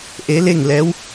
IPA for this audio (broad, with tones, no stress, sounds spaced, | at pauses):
ʔ e˧˥ l e˥˨ ŋ l ɛː˧˥ w